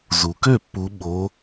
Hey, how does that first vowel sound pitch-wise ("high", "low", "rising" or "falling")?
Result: low